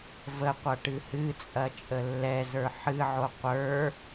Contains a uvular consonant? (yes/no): yes